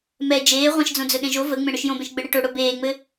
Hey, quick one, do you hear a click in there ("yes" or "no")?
no